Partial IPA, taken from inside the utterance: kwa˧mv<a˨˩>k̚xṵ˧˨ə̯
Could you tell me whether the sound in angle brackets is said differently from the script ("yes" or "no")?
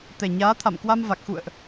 no